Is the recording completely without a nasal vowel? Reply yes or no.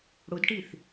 yes